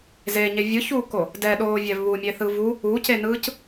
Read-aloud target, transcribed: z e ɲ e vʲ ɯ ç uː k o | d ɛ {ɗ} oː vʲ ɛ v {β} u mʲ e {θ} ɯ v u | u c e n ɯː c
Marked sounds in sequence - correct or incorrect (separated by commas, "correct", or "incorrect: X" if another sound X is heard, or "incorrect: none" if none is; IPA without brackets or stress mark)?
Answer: correct, correct, correct